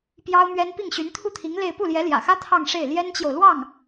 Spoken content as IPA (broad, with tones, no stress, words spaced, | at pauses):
pjɑ˥ʊ̯mɥɛ˥n pi˥˩ŋɕy˧˥n t̪ʰu˥˩t̪ʰi˧˥ŋ le˥˧ɪ̯ pu˥˩ljɛ˧˥ljä̰˨˩xä˥ t̪ʰɑ˥˧ŋʂe˥˩ɪ̯ ljɛ˥nt͡ɕjo˨ʊ̯lwɑ˥˩ŋ